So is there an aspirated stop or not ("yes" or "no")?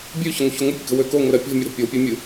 no